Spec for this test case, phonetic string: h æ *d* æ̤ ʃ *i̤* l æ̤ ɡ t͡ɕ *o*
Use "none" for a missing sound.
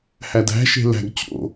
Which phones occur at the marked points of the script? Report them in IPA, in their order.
d, e̤, o̰

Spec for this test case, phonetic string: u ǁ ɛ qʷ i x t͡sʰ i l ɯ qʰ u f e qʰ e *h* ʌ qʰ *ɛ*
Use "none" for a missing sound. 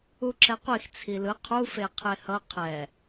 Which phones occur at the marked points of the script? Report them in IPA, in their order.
h, ɛ

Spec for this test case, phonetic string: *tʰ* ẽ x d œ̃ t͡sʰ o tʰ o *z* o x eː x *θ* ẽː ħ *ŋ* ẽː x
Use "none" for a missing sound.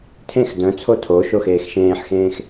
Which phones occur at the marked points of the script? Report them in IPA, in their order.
tʰ, ʃ, ʃ, x

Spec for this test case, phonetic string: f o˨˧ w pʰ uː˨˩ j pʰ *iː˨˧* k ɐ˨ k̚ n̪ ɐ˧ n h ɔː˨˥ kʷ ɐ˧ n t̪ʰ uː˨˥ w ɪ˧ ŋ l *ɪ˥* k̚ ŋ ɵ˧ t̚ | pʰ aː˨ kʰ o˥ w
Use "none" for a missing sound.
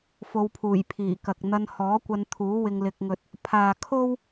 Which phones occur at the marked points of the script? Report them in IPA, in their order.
iː˨˩, ɪ˧

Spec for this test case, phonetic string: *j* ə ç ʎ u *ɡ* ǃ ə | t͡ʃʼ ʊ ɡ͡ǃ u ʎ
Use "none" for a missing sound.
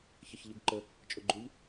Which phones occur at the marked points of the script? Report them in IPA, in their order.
ç, ɡ

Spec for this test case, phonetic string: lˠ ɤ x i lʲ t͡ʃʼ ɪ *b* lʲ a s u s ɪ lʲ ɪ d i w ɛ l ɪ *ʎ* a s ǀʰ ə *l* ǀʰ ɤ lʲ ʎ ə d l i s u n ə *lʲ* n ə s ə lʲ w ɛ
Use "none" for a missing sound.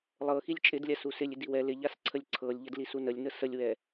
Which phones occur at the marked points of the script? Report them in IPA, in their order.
d, ʎ, lʲ, lʲ

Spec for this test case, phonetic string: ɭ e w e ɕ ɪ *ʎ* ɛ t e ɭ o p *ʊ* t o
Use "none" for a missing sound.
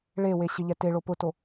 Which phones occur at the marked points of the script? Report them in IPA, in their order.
ʎ, ʊ

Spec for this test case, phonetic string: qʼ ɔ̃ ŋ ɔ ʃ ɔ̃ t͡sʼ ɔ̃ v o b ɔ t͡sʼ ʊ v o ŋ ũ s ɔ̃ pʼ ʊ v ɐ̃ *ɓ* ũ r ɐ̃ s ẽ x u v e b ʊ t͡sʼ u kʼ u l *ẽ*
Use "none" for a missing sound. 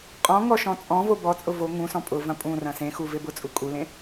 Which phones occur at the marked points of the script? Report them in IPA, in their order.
pʼ, ẽ

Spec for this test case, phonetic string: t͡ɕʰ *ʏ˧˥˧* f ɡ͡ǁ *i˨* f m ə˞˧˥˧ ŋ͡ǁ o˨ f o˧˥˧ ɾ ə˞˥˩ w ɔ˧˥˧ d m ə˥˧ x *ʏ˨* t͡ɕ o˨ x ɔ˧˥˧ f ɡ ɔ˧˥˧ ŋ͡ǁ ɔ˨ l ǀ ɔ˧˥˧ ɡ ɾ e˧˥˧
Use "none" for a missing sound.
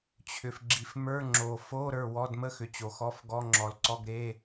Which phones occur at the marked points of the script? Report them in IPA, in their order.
ʏ˨, i˨, ʏ˨

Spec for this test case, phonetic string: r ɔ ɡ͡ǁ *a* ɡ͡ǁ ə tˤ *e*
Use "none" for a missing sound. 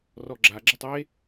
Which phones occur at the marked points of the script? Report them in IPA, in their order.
a, e

